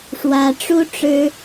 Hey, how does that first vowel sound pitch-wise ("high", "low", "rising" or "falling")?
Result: high